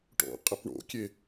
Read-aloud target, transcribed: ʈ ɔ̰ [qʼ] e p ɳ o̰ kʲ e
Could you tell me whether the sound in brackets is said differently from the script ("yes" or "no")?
no